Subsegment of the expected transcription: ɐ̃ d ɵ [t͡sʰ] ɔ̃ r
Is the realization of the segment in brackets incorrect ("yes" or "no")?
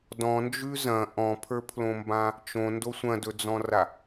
yes